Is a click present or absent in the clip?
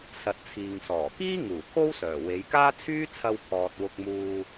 absent